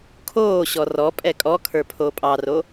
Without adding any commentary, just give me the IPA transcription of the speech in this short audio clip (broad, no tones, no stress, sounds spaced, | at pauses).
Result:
kʰ oː ɕ ɔ r ɔ pʼ ɛ kʼ ɔ kʰ ə˞ pʰ oː pʼ ɑ r o